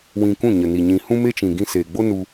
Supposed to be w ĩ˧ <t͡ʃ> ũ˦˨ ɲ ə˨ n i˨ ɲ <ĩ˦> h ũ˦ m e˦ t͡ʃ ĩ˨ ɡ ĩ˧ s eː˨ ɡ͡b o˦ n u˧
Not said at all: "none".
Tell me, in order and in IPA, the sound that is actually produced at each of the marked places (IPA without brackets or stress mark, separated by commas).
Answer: k, ĩ˨